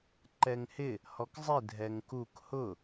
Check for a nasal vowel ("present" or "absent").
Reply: absent